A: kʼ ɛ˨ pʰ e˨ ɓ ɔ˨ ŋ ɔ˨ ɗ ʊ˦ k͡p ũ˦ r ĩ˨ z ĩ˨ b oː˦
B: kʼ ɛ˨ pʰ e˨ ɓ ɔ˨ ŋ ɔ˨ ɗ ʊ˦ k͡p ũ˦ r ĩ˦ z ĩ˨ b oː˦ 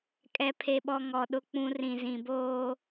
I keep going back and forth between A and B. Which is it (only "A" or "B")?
A